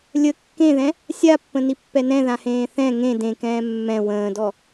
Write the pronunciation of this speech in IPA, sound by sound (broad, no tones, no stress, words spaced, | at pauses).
lʲə kːẽðɛ̃ | sʲapːə̃nipːɛ nɛ̃ðãhẽː θɛ̃ ŋẽ dẽkɛ̃ː mːɛ̃ wə̃ːdɔ